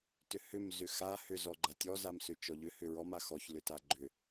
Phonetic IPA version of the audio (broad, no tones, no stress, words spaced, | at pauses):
tʏhʏm zʏxa hʏ zɔɡ͡ǃatʲɔ zamsʏt͡ʃɔʎʏ hʏɹɔm axɔç lʏtaɡ͡ǃʏ